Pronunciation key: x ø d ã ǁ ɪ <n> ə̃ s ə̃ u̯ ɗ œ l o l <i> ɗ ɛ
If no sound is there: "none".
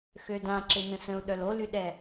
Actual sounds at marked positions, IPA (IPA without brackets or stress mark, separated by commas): n, y